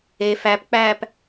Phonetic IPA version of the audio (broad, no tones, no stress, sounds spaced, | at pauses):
e f æ p k͡p æː p